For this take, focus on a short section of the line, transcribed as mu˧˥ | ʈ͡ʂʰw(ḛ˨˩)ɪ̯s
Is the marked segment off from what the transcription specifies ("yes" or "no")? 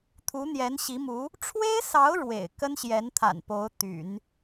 yes